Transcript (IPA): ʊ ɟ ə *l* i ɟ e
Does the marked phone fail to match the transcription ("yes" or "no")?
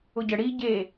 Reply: yes